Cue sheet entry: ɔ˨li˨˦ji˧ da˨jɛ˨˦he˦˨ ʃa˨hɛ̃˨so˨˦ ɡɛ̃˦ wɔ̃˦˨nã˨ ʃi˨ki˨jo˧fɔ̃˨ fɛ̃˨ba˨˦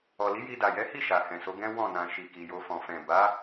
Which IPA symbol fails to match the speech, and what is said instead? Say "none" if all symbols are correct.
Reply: e˦˨ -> i˦˨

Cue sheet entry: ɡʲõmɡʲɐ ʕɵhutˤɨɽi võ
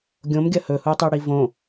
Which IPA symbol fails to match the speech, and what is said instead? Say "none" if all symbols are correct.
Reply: ʕ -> h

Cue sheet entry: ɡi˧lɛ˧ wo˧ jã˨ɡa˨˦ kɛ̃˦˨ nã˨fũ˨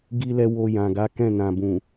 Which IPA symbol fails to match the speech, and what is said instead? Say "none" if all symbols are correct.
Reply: f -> b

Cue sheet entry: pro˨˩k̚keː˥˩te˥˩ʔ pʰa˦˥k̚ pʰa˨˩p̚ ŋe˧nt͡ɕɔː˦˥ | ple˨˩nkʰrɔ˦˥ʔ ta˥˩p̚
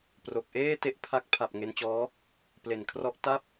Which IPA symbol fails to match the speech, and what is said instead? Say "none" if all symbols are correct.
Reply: k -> ʔ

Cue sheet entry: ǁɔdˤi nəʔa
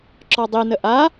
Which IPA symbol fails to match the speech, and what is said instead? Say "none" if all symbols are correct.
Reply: none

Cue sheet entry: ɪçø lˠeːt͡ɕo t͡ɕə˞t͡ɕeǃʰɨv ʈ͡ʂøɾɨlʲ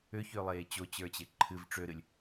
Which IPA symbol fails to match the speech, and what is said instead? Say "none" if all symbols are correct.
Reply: ɪ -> ʏ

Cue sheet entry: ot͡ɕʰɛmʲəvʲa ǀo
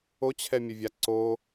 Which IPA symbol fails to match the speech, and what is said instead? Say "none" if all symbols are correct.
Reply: none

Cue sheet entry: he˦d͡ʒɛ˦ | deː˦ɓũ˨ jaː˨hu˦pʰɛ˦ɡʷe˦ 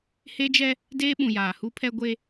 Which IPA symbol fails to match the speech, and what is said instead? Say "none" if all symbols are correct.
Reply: none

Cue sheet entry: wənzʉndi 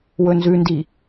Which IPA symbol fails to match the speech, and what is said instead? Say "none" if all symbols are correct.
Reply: ə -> ɵ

